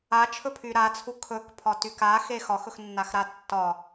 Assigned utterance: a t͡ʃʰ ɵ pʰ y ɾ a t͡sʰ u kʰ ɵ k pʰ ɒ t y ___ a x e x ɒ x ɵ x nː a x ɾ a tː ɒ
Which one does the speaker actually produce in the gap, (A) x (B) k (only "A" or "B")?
B